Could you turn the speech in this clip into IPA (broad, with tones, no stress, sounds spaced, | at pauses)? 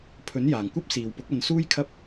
pʰ ɵ˨˥ n j aː˨ ŋ kʷ ɐ˥ p̚ s iː˨ w p ʊ˨˥ k̚ ɐ˨˧ n s uː˥ j kʰ ɐ˥ p̚